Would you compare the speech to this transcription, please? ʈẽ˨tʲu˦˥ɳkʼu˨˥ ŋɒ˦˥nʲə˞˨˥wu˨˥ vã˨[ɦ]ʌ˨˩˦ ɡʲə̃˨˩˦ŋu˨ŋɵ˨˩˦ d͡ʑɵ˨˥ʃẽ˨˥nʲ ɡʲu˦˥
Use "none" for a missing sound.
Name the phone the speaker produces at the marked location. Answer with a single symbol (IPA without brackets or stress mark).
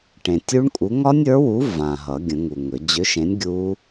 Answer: ɦ